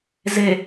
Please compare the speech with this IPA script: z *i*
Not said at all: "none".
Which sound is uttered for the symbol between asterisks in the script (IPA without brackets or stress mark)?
e